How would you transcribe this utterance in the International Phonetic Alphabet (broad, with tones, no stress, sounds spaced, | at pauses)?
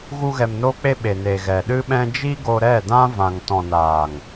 ɣ u˧ ɣ ɛ˨ m n o˧ k͡p e˧ ɓ e˨ n e˨ ɣ ɛ˨ ɗ ɨ˦ ɓ ɛ̃˦ d͡ʒ i˦ ɡ o˧ ɾ ɛ˦˨ d ã˦ v ã˨ ŋ t ɔ̃˨ n aː˨ ŋ